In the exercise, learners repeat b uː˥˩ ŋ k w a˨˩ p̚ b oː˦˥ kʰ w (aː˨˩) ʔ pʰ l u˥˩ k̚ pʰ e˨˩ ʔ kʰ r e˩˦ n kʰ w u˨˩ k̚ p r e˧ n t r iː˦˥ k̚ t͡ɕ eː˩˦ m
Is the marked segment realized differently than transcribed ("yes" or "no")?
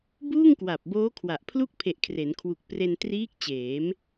yes